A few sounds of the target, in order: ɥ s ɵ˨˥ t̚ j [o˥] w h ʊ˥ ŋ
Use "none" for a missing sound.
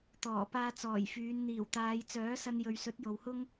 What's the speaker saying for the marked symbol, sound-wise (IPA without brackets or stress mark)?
o˨